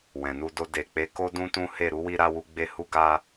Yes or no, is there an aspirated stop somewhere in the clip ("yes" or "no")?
no